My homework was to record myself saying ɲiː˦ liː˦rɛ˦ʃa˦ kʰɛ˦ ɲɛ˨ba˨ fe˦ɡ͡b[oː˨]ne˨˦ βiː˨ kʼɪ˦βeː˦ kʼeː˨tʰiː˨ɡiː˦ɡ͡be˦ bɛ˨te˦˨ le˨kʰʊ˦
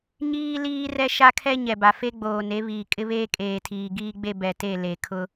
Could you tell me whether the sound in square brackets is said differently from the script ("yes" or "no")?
no